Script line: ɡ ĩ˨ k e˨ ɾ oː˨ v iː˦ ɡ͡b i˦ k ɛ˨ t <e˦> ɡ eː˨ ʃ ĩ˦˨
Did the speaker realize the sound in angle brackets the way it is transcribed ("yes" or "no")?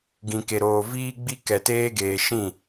no